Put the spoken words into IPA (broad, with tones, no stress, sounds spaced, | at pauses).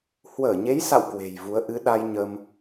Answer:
h w əː˧˩ ɲ e˨˦ j s a̰˧˨ w k w e̤˨˩ j v u˨˦ ə̯ ʔ ɨ˨˦ ɗ a˧ j ɲ əː˧ m